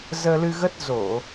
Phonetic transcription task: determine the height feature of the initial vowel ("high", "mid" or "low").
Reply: mid